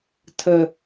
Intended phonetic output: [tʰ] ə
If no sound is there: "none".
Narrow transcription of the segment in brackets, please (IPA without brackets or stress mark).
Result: tʰ